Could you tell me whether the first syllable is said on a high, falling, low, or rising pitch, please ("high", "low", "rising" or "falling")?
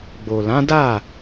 low